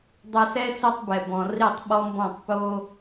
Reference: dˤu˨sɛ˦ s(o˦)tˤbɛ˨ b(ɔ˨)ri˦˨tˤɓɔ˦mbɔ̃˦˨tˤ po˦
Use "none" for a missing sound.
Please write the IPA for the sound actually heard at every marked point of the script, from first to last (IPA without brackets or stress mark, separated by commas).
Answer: o˦, ɔ̃˨